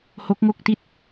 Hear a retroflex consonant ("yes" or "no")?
no